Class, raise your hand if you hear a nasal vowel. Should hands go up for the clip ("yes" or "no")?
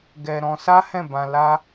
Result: yes